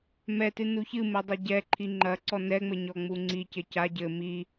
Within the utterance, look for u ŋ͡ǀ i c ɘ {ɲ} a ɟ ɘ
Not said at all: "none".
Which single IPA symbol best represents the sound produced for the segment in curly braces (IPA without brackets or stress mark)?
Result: c